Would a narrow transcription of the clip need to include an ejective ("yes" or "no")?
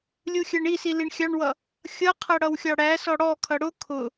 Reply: no